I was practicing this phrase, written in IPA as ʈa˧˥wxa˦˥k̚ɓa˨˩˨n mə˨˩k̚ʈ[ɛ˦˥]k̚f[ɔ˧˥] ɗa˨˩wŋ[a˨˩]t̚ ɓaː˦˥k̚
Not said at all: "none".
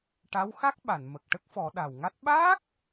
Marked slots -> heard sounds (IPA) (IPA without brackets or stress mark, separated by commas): ə˦˥, ɔ˨˩˦, a˦˥